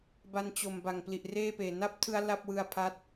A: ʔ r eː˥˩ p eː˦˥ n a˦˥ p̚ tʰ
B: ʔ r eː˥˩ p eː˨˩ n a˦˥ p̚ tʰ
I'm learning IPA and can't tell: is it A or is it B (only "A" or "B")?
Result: B